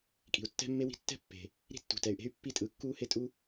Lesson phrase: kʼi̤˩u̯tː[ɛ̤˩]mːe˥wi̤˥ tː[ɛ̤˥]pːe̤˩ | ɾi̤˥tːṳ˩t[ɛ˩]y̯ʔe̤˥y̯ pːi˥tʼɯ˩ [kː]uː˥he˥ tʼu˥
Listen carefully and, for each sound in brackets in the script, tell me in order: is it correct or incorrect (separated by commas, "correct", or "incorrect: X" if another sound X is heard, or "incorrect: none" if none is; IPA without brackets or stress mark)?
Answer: incorrect: ɛ̤˥, correct, correct, correct